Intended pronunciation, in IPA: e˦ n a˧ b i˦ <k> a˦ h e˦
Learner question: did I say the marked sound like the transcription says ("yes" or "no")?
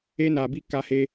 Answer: yes